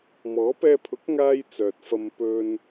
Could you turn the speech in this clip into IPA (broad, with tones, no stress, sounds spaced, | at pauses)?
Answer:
m ɔː˨˥ p ɛː˧ pʰ ʊ˨˥ k̚ ŋ aː˧ j t͡s œː˨ t̚ f ɐ˧ m p ɵ˧ n